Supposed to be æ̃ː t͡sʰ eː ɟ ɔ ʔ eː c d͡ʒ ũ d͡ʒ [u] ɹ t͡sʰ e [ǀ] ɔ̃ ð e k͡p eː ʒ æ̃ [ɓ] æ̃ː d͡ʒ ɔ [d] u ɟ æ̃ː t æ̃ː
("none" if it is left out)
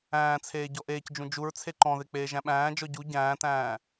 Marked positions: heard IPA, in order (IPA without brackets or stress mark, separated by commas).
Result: u, ǃ, ɓ, ɟ